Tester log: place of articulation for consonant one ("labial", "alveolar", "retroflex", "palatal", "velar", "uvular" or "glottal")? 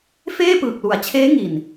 labial